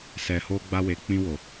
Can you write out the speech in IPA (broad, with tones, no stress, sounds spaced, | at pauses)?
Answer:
s ɛ˨ h o˧ ɡ͡b a˧ w e˨ k͡p ĩ˧ w o˨